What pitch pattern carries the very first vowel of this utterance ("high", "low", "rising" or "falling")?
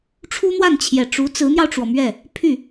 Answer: high